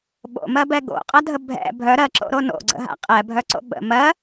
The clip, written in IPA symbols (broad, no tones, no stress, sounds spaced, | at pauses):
ɓ o̰ m ɜ b ɛ ɡ o̰ qʼ ɐ dʱ ə bʱ ɛ̰ bʱ œ ɾ ɜ ǁ o̰ ɾ o n o̰ ɡ͡ǀ ə̰ ɦ a̰ qʼ ɛ bʱ œ ǀ o̰ ɓ ə̰ m ɜ